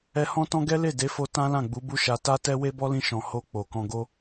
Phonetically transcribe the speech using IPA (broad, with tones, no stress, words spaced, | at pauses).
ɛ˧hɔ̃˦tɔ̃˦ ɡɛ˦le˦˨ de˨˦fo˧ tã˦lã˦˨ɡ͡bu˨˦ bu˦ʃa˧ ta˦tɛ˦ we˦bɔ˦lĩ˧ʃɔ̃˨ ho˧ k͡po˨kɔ̃˧ɡo˦